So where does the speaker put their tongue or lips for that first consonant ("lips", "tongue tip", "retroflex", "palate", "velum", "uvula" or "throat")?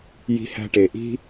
palate